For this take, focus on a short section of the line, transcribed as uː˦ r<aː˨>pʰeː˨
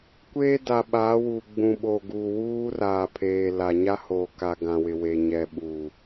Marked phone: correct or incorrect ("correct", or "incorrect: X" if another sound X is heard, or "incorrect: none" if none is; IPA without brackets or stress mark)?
correct